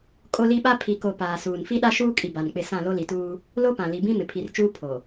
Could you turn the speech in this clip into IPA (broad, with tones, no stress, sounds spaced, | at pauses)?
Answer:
kʼ o˦ l i˦ ɓ a˦ pʰ i˨ k o˨ p aː˨ s uː˨ n f i˦ ɗ a˦ ʃ uː˦ kʼ i˨ b a˨ n k͡p ɪ˦˨ s ã˦˨ l o˦ l i˨ t uː˦ | l o˦ p ã˨ l i˨ b ĩ˦ m ɪ˨ pʰ i˨ r t͡ʃ uː˦ pʰ o˨